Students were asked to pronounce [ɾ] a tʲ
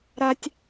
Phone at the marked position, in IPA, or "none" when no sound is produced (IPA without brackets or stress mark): ɾ